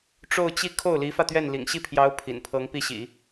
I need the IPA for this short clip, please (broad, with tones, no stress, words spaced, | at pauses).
ʈ͡ʂo˥˧ʊ̯t͡ɕi˥˧ kʰo˥˩ʊ̯li˧˥fä˧ t̪ɥɛ˥˩nlḭ˨˩ŋ ɕi˥˩pʰjɑ˧˥ʊ̯ pʰḭ˨˩npʰɤ˧˥ŋpi˥˩ɕḭ˨˩˦